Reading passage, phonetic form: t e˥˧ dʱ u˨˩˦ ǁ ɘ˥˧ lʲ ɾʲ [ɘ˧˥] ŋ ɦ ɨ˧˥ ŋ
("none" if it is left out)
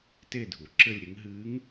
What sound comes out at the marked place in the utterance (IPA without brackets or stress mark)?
ɘ˧˥